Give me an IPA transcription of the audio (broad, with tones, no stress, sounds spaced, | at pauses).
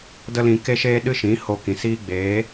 d ə˦ l ĩ˧ k e˦ ʃ eː˦ ɗ ɨ˦ ʃ ĩ˨˦ h o˧ k ĩ˨ s iː˦ ɡ͡b eː˨˦